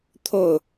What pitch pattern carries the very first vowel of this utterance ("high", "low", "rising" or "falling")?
falling